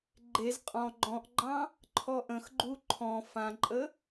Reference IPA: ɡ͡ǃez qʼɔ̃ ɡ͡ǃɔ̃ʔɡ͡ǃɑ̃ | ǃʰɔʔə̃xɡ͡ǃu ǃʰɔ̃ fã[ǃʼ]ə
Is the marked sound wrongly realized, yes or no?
no